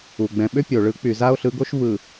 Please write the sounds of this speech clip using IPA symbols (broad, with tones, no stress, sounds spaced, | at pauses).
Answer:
u˨ ɡ͡b ɛ̃˨ ɓ ʏ˦ pʲ o˨ ɭ ɯ˨˦ k͡p y˨ z a˦ o̯ ɬ ɯ˨˦ ɡ o˦ ʃ v ɯ˨